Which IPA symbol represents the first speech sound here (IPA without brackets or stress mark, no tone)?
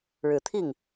ɻ